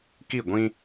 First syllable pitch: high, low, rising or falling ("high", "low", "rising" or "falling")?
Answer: falling